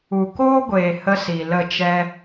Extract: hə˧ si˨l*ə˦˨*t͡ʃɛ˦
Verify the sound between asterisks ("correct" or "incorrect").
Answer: correct